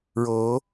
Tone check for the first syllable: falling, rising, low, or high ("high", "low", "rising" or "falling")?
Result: rising